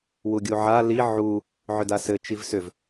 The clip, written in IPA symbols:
w u ɡʲ u ʕ a l i ʕ u | ʕ ʏ d a s ɘ t͡ʃ i v s ʏ v

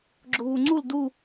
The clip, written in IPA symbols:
ɡ͡ǁ ʊ β u ŋ͡ǀ u l d u

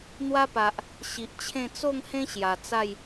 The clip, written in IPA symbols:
n̪ w a˦ p a˨ ʔ | ɕ i˨ ʔ t͡ɕʰ ẽ˥˧ t͡s o˥˧ ŋ h ẽ˦ ɕ j a˨˩ t͡s a˥˧ j

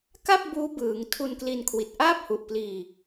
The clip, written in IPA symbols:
k a˥˩ p̚ b uː˦˥ b ɯː˩˦ ŋ tʰ u˧ n k l i˧ n kʰ w i˨˩ t̚ ʔ aː˥˩ p̚ h u˨˩ ʔ p l iː˧

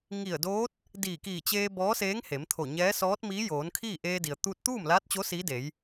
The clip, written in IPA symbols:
ŋ i˧˩ ə̯ d oː˧˥ t̚ | d iː˧˩ k iː˧˩ t͡ɕ eː˧ b ɔː˧˥ s eː˧˥ ŋ h e˩˧ m t̪ʰ o˧˩ ɲ ɛː˧˥ s ɔː˧˥ t̚ m iː˧˥ j oː˩˧ n kʰ iː˥˨ ʔ eː˧ d i˩ ə̯ t̪ uː˧ t̚ t̪ uː˥˨ m l aː˧˥ t̚ t͡ɕ o˧˥ s iː˧˥ d e˩˧ j

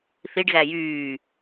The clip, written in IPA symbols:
θ i ɖ ɣ æ j yː

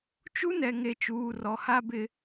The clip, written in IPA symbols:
t͡ʃ u˦ n ɛ˨ ŋ e˨ t͡ʃ uː˨ r ɔ˨ h a˦ b ɪ˦

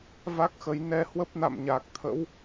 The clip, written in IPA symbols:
v a˦˥ k̚ x ə˨˦ j n ɛ˧ h w ə˦˥ p̚ n a̰˧˨ m ɲ aː˨˩ k̚ t̪ʰ ə̰˧˥ w

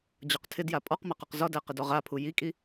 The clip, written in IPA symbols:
d͡ʑ ɒ q tʰ ɪ d j a pʼ ɔ q m a q ɒ q z ɒ d æ q ɪ d ɔ ʁ a pʰ u j i kʼ i

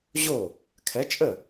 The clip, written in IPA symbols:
ʑ o˥˩ | kʰ ɛ˨˥ t͡ʃʼ ə˥˩

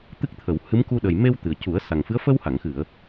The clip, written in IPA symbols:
t̪ ɨ˦˥ k̚ t̪ʰ ə˨˩˨ w h ɨ˧˥ m k u˧ ɗ ə˨˩ j m e˧ w t̪ ɨ˨˩ ə̯ c u˨˩˦ ə̯ s a˨˩ ŋ f ɨ˧˥ ə̯ f ə˧ w h a˨˩˨ ŋ x ɨ˨˩˨ ə̯

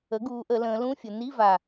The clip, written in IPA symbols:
ə˩˥ ɡ uː˩˧ ʔ ə˩˧ l ə̃ː˩˧ l ũ˧˥˧ fʲ ə˩˧ n i˧˥˧ v a˨˩

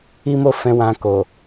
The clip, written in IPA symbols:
i˦ m o˦˨ f ɛ̃˧ w ã˧ k o˨

